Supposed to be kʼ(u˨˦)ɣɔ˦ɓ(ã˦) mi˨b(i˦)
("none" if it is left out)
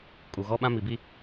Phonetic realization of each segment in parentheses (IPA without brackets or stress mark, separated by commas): u˨, ã˦, i˦